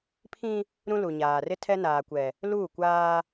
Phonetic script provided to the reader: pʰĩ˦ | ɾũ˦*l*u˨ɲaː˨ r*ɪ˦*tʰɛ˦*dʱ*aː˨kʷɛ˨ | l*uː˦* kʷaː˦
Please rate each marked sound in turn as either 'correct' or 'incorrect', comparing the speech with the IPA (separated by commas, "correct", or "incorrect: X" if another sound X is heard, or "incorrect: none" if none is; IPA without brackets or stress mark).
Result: correct, correct, incorrect: n, incorrect: uː˦˨